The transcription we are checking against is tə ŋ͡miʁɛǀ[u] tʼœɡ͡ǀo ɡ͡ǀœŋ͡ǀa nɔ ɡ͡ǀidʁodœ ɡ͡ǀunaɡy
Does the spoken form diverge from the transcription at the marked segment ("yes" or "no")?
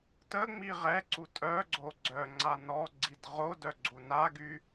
no